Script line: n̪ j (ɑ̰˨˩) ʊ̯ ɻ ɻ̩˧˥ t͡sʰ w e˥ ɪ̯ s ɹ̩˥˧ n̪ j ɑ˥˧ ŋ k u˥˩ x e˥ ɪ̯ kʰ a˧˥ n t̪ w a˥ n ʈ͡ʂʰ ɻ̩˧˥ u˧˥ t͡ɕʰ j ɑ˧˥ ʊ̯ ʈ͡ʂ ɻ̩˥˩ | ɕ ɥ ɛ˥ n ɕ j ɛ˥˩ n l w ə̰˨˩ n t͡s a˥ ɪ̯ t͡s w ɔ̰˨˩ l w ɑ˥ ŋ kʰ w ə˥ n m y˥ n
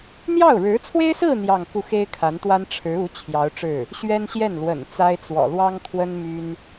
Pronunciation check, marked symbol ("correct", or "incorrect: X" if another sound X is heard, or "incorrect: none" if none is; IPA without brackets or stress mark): incorrect: ɑ˥˩